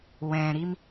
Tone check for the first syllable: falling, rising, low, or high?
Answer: low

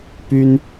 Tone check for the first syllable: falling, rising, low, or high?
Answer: high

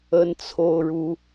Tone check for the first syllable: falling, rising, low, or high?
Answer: high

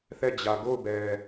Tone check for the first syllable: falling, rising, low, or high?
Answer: falling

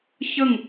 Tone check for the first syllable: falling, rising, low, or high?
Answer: falling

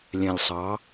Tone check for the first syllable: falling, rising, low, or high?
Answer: low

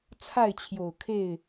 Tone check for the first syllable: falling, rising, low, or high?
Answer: falling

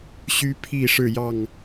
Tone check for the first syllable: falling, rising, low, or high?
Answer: high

